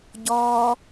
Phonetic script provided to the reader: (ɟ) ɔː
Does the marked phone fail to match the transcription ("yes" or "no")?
no